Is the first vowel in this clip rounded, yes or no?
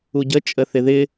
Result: yes